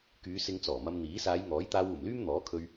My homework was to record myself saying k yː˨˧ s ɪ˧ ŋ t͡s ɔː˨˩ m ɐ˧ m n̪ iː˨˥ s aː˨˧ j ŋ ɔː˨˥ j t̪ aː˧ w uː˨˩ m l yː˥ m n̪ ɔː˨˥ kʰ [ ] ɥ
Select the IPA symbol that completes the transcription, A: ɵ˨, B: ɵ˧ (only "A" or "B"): B